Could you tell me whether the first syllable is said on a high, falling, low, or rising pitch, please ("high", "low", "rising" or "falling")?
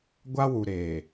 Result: high